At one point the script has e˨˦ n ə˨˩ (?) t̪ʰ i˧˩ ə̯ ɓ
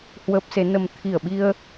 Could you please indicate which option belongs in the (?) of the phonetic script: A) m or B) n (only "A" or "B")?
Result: A